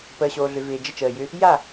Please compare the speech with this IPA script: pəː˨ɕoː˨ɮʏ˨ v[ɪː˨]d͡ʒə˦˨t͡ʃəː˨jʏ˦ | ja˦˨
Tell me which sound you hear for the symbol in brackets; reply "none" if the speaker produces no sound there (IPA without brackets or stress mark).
ɪː˨